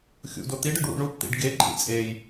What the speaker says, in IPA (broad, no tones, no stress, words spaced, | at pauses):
xʲṵdo t̪iɖɯɖwṵ ɳupt̪ḭɖ ɡeǃʼḭ t͡sʼej